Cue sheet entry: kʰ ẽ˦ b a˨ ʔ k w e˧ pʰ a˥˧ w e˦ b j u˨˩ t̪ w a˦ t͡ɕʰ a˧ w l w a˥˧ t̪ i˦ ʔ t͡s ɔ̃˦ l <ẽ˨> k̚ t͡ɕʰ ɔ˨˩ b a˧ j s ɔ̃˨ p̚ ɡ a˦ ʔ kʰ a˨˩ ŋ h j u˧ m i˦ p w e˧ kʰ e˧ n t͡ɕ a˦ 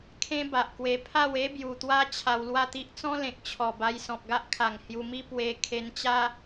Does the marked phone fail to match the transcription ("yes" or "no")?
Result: no